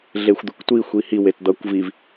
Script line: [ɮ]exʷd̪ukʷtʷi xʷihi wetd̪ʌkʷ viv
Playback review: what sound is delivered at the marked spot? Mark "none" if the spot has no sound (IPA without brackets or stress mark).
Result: ɮ